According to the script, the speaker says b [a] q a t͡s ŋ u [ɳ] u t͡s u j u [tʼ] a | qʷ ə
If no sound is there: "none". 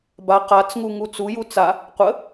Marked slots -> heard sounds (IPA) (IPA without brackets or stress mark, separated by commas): a, ŋ, t͡s